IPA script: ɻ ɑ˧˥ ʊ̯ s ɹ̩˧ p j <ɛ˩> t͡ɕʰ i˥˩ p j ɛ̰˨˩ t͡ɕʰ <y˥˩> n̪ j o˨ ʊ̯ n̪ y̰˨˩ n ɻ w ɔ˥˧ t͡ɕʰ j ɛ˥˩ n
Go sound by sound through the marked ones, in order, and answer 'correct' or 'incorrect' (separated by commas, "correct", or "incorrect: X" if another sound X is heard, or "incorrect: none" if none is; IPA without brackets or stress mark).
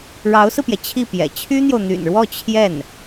correct, incorrect: y˥